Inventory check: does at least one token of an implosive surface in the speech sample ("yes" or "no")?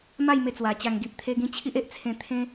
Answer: no